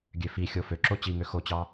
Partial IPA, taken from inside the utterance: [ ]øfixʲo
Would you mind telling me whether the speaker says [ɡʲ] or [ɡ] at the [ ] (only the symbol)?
ɡʲ